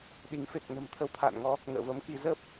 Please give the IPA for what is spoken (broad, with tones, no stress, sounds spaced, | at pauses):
ɗ i˨˦ ŋ f e˨˩ k̚ n ə̤˨˩ m t̪ʰ ə˧ w t̪ʰ a̰ː˧˨ n ŋ ɔ˨˦ | ŋ ə̰ː˧˨ v ə˨˦ m k i˧ z ə˦˥ p̚